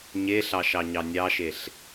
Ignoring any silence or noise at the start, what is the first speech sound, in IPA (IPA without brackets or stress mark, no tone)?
ɲ